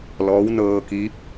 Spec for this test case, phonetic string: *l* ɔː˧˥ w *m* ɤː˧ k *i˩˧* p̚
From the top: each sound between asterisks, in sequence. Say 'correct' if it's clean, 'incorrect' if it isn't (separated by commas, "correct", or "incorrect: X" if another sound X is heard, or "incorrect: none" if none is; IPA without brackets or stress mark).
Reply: correct, incorrect: n, incorrect: i˧˥